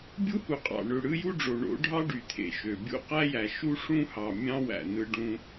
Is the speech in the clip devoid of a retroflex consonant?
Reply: no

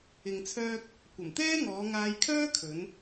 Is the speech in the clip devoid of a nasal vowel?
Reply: yes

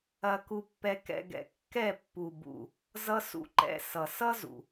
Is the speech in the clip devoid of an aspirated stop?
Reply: yes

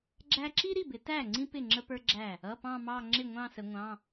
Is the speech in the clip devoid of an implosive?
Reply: yes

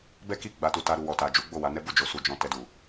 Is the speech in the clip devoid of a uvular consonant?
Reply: yes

